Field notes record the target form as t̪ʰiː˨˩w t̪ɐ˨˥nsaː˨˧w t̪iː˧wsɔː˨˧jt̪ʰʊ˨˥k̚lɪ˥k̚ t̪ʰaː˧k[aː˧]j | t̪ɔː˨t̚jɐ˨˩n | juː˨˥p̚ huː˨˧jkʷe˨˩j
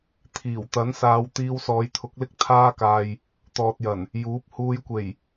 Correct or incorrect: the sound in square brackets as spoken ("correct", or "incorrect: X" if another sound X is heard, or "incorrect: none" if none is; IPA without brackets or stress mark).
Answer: incorrect: aː˨